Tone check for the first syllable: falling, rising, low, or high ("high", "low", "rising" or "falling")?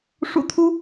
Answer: low